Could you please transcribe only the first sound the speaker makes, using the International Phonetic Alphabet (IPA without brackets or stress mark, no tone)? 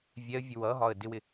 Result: vʲ